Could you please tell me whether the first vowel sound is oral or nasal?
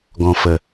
nasal